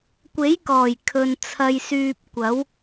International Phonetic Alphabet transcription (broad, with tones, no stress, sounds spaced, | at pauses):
kʷ e˨˥ j k ɔː˨˩ j kʰ ɵ˨ n t͡sʰ ɐ˧ j s yː˧ p̚ kʷ ɐ˨˥ w